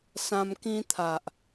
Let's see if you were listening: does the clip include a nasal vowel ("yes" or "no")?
yes